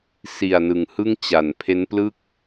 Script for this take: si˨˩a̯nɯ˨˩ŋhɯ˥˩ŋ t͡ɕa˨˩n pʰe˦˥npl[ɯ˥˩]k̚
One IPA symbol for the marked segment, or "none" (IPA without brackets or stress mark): ɯ˥˩